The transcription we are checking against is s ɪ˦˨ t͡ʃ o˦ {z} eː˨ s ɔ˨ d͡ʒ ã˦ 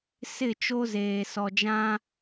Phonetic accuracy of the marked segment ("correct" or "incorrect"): correct